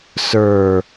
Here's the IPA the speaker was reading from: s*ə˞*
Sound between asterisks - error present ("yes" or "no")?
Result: no